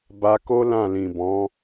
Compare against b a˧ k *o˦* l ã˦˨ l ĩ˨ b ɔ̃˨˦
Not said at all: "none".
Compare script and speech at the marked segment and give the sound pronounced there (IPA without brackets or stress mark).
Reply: o˦